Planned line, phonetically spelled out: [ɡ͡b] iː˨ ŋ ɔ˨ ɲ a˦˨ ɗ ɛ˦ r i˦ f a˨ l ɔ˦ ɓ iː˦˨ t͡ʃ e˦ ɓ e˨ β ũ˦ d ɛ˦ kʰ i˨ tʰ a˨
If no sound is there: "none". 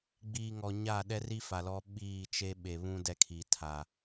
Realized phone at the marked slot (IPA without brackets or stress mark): ɡ͡b